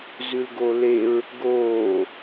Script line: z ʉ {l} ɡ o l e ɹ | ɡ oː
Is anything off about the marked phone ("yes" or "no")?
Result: no